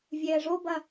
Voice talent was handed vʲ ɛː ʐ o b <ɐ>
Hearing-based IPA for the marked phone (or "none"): ɐ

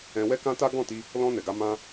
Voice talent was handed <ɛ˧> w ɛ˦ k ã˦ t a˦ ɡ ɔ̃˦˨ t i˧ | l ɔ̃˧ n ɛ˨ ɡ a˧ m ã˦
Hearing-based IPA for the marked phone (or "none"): ɛ̃˧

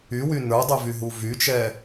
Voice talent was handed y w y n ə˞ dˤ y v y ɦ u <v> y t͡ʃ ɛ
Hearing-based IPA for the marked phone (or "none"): v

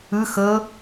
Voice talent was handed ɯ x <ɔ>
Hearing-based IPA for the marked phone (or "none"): ɤ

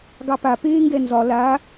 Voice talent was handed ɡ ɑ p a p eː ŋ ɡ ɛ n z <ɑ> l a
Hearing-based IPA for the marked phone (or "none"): ɒ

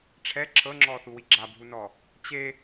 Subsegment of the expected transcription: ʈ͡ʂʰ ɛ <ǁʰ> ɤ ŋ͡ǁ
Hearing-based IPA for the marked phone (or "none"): ǁʰ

